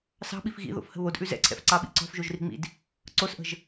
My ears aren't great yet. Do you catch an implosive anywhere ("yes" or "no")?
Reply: yes